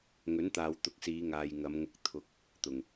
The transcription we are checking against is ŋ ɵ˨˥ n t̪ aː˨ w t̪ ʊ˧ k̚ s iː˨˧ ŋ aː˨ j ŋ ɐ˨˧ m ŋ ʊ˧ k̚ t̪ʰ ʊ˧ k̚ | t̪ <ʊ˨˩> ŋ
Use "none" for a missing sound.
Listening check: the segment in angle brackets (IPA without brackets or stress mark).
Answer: ʊ˨˩